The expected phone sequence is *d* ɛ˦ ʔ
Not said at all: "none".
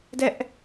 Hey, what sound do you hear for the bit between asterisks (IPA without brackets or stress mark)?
d